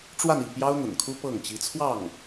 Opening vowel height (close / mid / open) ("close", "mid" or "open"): open